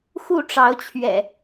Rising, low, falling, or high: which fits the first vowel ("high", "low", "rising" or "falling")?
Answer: falling